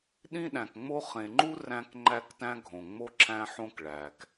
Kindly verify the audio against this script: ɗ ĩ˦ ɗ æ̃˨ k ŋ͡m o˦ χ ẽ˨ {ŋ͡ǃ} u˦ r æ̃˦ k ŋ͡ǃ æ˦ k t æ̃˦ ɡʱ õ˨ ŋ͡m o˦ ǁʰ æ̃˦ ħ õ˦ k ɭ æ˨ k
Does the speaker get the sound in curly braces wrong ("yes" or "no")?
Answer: no